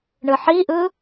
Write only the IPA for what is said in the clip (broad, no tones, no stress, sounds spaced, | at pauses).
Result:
ɳ ɯ ħ i ʔ ɯ